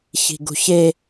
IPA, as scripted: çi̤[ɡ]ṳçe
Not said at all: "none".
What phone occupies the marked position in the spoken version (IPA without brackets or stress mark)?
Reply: ɡ